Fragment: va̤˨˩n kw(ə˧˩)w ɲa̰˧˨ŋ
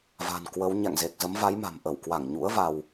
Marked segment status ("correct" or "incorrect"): incorrect